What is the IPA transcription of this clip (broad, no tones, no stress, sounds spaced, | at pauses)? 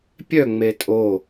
pʲ œ ŋ͡m e tʼ o